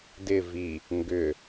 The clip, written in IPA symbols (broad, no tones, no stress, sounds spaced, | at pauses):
d ɪ v i | ŋ ɡ ʏ